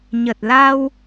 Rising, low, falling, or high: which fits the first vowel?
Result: low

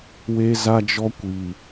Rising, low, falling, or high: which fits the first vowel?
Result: high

